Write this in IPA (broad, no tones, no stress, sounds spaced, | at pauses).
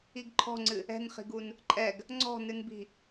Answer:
i ɡ ǃʰ ɔ̤ ŋ͡ǀ ɨ | ɛ̤ n χ i̤ ɡ u n | ǃʼ ɛ ɡ | ŋ͡ǀ ɔ̤ n ɨ n b i̤